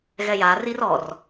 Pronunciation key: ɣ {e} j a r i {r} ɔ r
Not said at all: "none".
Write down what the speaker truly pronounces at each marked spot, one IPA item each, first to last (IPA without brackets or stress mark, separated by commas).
ɛ, r